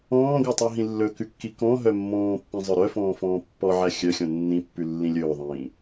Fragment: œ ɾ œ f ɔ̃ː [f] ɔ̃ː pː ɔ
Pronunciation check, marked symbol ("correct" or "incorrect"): correct